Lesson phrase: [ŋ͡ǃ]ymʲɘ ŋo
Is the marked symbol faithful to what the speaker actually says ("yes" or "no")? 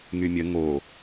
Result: no